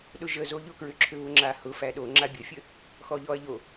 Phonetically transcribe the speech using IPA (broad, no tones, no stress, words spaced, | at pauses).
ɗʊʒəzo ʎʊkɹʏǁʰʏ βʊŋ͡ǁahʊ fæɗo ŋ͡ǁabʲəfʲə | xɔʎɔɐ̯ʎo